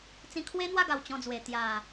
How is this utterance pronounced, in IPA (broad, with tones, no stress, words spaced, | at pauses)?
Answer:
t͡sĩ˧kʰwe˦n̪wa˥˧ɡa˨˩w t͡ɕɔ̃˧d͡zwe˨˩ t̪ja˨˩